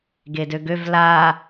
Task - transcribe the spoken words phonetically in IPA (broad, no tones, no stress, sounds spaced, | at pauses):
ɡ e d ø ɡ ø v l a